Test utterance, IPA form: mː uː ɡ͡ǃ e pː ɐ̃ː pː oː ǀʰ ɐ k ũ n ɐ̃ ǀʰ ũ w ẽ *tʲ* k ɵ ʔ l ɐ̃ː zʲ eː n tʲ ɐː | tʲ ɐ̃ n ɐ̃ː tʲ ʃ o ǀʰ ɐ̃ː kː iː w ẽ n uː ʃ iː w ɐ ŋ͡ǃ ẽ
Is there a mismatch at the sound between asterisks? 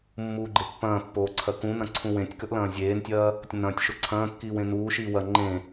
no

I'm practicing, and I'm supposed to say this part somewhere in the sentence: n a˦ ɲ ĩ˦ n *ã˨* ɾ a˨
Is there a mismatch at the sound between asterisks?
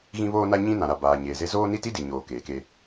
no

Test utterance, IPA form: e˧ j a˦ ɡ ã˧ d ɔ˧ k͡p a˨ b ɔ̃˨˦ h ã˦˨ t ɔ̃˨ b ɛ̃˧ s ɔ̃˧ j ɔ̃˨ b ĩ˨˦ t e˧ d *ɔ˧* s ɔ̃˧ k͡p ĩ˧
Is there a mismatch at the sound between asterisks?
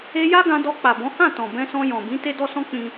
no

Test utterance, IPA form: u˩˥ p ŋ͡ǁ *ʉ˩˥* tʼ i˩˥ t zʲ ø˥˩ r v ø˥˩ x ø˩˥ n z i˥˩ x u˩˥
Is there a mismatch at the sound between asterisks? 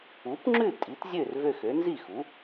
yes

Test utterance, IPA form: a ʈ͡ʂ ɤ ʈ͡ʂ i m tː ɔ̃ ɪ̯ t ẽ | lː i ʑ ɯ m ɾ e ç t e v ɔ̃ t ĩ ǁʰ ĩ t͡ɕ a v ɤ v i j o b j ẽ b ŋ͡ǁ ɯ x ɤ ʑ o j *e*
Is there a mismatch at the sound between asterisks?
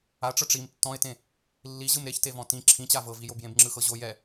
yes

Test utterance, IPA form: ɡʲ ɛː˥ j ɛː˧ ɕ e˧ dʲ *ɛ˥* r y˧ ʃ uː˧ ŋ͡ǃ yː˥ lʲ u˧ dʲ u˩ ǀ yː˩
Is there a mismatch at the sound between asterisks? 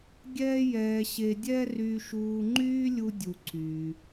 no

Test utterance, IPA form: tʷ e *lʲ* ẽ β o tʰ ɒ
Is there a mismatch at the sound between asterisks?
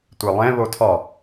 yes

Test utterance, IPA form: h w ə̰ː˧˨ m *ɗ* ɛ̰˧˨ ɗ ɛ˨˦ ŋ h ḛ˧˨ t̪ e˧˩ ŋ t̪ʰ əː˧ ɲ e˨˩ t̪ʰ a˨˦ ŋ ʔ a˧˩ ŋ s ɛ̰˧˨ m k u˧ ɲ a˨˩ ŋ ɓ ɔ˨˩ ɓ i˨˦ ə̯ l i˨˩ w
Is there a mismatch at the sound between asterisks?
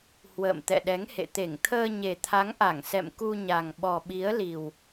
yes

